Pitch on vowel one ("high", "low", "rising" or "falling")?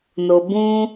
low